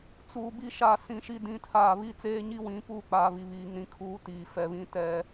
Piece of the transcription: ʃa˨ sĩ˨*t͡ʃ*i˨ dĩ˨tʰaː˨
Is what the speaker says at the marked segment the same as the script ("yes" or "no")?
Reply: no